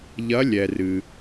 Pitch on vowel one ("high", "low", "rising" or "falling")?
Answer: rising